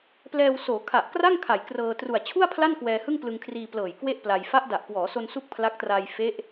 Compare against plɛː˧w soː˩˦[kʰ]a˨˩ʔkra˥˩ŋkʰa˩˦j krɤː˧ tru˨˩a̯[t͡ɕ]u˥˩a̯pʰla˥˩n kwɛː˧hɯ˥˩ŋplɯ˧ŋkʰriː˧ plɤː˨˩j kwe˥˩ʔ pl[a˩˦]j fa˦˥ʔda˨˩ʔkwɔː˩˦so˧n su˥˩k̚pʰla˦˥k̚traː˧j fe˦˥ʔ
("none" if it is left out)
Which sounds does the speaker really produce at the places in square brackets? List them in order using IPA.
kʰ, t͡ɕʰ, a˧

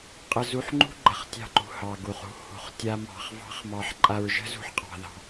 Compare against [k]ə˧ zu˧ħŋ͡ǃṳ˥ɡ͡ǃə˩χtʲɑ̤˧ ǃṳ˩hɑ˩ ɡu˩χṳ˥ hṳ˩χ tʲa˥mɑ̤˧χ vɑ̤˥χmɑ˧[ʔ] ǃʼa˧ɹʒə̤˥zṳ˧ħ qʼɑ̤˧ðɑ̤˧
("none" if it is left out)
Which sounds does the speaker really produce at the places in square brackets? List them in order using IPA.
qʼ, ħ

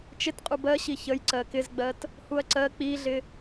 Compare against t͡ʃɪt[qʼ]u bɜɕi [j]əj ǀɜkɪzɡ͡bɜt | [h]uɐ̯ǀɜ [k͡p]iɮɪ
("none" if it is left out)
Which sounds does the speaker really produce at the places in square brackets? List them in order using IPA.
qʼ, ç, h, k͡p

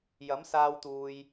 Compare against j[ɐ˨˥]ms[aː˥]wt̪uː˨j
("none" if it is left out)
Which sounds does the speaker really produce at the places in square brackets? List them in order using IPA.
ɐ˨˥, aː˧

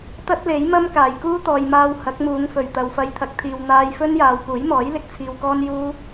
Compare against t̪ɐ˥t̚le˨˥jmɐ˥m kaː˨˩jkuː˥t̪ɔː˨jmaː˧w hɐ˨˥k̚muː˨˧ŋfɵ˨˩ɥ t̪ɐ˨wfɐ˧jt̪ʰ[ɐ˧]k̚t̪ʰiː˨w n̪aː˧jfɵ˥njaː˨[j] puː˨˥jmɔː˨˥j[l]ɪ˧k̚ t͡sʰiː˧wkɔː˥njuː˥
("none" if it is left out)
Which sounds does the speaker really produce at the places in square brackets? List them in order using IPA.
ɐ˨, w, l

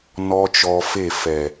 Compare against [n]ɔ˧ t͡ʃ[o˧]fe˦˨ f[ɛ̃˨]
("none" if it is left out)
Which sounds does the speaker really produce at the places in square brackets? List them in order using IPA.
n, ɔ˧, ɛ˨

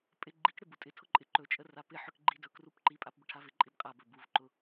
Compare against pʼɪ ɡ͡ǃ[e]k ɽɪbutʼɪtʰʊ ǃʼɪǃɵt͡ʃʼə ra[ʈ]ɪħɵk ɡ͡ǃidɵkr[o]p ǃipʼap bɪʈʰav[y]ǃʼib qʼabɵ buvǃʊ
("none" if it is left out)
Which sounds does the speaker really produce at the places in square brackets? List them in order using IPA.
i, p, u, ɪ

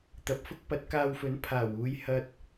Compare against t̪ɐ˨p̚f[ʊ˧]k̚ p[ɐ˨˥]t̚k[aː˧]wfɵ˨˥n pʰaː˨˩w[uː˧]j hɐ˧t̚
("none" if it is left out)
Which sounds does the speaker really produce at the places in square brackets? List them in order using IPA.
ʊ˥, ɐ˨˥, aː˧, uː˨˧

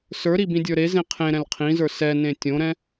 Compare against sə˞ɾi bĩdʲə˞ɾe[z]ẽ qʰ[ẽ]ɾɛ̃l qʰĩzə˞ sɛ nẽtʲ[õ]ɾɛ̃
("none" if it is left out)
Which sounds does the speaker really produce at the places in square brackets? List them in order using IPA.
z, ẽ, õ

